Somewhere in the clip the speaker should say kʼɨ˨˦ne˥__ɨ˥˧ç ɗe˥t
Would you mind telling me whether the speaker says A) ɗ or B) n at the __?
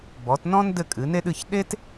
A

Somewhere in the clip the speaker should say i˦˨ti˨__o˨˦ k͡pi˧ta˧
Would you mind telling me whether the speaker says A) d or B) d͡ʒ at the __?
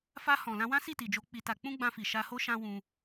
B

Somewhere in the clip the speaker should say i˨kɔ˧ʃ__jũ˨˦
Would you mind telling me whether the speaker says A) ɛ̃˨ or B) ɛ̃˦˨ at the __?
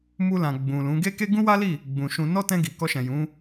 A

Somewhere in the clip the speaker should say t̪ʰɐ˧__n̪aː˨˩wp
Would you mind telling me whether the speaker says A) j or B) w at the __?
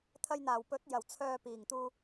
A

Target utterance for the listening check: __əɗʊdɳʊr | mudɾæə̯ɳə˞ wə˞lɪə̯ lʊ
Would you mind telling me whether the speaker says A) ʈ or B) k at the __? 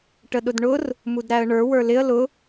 A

